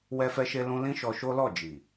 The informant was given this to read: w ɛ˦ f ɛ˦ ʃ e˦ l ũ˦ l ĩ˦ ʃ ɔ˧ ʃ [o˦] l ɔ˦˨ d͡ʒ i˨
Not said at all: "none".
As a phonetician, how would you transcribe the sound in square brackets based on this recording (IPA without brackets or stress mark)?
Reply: o˦